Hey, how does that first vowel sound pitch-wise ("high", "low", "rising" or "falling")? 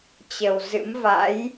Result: low